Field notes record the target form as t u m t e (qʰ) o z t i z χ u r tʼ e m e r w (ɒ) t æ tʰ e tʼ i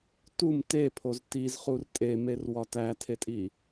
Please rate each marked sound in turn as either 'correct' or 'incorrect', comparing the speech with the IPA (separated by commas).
incorrect, correct